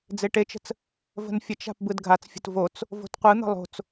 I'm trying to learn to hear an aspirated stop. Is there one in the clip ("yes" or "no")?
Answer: no